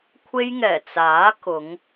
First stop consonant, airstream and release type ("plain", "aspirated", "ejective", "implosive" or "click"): aspirated